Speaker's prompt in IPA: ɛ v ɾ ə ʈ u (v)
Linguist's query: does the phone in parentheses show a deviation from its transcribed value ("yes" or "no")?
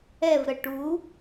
yes